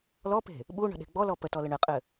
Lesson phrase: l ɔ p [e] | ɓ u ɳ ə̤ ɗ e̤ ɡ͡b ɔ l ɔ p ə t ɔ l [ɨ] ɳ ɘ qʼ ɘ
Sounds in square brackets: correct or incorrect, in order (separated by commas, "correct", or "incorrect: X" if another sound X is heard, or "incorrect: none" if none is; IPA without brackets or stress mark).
incorrect: e̤, incorrect: ə